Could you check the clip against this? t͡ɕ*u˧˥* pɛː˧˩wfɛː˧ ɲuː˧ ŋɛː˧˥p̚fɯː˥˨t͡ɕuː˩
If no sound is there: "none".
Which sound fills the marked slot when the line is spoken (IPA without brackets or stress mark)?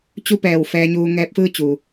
u˥˨